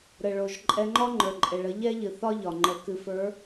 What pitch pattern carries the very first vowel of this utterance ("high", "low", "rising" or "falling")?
low